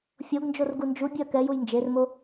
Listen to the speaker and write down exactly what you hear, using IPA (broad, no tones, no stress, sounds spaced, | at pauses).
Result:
fʲ o ɡ n d͡ʒ o r ɡ u n d͡ʒ u bʲ ɨ ɐ̯ k ɛ j u j n d͡ʒ e r m o